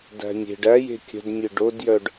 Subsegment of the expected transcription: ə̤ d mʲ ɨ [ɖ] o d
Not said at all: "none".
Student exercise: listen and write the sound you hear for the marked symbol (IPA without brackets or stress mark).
ɖ